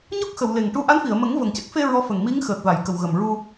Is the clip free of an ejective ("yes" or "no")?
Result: yes